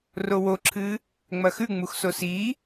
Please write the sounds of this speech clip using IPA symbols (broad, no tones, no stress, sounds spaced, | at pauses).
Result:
r o w o ǁʰ ɨː | ŋ͡m ɐ x ʉ ŋ͡m u x s o s iː